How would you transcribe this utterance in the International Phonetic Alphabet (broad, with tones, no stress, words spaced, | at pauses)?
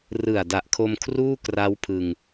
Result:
rɯ˨˩a̯da˨˩ʔkʰo˧m kʰruː˥˩ kra˦˥wpʰɯ˧ŋ